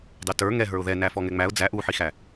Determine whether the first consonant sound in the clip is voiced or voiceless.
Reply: voiced